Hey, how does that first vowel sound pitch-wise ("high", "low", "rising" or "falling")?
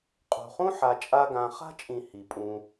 low